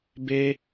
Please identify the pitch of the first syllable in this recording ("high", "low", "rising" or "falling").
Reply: high